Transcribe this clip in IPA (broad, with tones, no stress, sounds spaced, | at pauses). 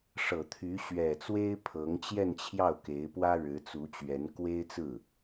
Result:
ʂ ɤ˨˩ t̪ʰ y˧˥ ɕ ɥ ɛ˨˩ t͡s w e˥ ɪ̯ pʰ ɤ˧˥ ŋ t͡ɕ j ɛ˥˧ n t͡ɕʰ j ɑ˥˩ ʊ̯ k e˧˥ ɪ̯ p w ä˥ ɻ ɻ̩˧˥ t͡s u˧˥ t͡ɕ ɥ ɛ˧˥ n k w e˥ ɪ̯ t͡s ɹ̩˥˩